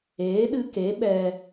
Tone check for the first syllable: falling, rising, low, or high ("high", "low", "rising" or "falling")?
rising